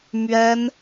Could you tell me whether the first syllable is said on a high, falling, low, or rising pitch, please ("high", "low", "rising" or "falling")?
high